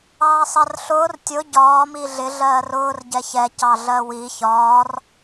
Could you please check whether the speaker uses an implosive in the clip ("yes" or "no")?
no